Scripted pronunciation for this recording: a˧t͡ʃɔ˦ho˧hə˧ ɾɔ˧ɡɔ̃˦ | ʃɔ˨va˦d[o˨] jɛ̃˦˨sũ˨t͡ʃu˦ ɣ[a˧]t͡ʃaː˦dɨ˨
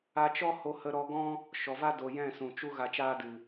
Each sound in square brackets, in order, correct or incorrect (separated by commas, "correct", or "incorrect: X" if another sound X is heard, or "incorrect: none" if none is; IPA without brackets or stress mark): correct, correct